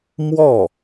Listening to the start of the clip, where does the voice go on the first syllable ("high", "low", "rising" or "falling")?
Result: falling